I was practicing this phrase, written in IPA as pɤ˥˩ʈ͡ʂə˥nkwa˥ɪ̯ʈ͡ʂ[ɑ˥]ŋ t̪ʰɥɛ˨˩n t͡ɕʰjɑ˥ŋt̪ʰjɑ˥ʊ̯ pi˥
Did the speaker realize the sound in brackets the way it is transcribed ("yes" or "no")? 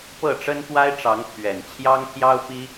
no